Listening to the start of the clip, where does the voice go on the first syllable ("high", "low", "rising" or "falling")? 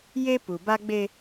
high